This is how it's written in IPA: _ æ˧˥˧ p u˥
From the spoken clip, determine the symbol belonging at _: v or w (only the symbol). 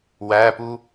w